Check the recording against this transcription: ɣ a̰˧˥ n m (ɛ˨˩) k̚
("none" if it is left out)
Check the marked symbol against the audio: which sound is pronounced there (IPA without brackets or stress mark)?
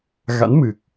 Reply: ɨ˨˩